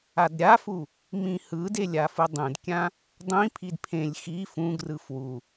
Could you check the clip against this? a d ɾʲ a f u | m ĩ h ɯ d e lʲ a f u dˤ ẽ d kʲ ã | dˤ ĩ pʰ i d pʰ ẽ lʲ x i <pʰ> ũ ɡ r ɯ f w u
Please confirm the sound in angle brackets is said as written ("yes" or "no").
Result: no